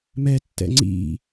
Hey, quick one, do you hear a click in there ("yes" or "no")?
yes